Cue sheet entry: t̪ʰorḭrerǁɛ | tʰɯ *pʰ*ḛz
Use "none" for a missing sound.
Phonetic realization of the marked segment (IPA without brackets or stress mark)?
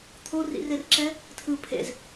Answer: pʰ